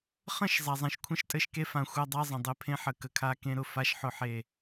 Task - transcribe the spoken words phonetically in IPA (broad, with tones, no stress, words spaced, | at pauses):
χə̃˦˨ʃ zˤa˨zˤẽ˨ʃkʷʰə̃˦ʃ tʼɘ˨ʃ ke˦fã˨ xʷa˦dˤa˦zˤə̃˨ dˤe˦pʰẽ˦ħə˨ kə˨kʰa˦ kẽ˦ɾʊ˨ fa˦ʃħʊ˦ħe˦˨